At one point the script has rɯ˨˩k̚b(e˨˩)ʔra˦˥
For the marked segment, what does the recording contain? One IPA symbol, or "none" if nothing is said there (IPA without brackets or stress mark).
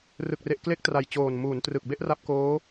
e˥˩